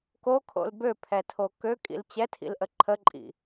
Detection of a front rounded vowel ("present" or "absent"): present